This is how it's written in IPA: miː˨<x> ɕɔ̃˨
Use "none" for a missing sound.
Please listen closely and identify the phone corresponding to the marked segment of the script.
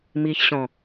ç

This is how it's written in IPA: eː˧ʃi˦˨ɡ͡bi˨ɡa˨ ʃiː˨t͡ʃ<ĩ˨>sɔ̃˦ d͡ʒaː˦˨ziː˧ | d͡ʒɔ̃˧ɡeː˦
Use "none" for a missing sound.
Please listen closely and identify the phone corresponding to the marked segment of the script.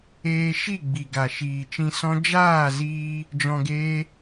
ĩ˧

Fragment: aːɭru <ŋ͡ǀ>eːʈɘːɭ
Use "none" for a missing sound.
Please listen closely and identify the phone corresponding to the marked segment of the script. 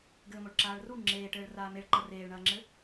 ŋ͡ǁ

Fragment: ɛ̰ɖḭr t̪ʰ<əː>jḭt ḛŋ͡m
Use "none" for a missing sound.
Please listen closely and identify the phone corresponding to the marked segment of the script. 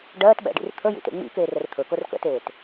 ə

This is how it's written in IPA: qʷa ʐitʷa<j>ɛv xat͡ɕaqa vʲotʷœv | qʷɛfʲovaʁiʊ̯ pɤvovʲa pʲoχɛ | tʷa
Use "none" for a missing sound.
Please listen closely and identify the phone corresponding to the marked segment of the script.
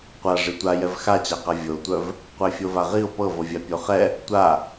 j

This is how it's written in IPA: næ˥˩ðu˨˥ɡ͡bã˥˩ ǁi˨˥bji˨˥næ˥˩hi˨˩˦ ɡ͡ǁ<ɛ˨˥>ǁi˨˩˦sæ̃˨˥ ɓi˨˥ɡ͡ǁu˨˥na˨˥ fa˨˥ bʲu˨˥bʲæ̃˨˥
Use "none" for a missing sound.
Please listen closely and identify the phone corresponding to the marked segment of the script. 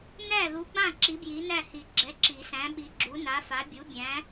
ɛ˨˥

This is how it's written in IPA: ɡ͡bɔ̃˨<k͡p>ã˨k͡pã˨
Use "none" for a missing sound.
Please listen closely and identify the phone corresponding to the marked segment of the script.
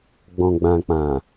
ɡ͡b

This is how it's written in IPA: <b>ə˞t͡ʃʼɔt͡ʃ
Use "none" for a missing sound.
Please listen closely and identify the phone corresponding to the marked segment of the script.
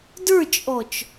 d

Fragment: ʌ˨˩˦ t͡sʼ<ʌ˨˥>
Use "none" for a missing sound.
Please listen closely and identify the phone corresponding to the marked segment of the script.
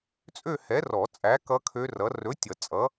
ʌ˨˥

